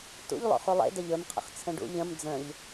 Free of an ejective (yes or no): yes